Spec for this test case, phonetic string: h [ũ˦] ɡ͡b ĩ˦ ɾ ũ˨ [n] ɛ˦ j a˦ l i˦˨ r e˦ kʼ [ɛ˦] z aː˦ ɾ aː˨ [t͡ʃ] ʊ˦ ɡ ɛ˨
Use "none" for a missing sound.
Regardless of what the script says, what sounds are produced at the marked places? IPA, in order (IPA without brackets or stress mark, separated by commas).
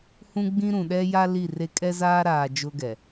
ũ˦, ɗ, ɛ˦, d͡ʒ